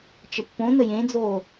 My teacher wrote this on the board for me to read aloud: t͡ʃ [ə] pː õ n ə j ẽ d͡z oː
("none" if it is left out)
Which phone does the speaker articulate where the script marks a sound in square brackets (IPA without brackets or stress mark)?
ə